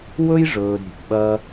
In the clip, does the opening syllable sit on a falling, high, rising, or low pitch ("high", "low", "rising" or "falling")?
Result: high